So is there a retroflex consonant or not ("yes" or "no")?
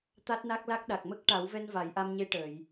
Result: yes